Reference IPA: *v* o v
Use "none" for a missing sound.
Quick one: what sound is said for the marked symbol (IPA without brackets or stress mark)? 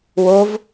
w